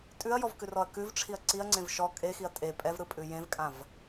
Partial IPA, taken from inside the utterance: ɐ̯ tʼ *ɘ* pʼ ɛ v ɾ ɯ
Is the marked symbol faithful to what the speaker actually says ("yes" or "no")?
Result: no